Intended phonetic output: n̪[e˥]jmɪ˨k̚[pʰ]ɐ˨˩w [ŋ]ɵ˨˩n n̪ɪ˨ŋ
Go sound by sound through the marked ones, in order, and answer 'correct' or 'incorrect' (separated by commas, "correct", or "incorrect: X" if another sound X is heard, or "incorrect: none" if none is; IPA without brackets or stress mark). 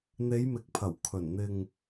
incorrect: e˨˧, correct, incorrect: kʰ